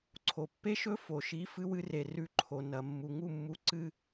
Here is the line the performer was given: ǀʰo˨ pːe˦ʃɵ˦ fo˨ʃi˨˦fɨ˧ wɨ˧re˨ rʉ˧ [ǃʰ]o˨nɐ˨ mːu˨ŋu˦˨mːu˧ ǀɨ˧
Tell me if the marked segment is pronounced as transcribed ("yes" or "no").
yes